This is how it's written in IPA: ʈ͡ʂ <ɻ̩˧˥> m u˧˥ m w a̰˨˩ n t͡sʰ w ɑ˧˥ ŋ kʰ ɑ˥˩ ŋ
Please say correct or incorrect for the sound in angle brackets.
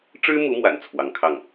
incorrect